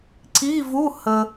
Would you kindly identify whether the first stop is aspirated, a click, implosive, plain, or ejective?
click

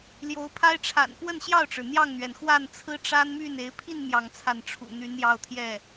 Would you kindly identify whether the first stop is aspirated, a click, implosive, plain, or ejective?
aspirated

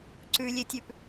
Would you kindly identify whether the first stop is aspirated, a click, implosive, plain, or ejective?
click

